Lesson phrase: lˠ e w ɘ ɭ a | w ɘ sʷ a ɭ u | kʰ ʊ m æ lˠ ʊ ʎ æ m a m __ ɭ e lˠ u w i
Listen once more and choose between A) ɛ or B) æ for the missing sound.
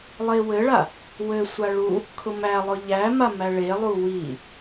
B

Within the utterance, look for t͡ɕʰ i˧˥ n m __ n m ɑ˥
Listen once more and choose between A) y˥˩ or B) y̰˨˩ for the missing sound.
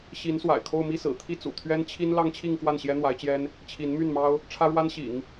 A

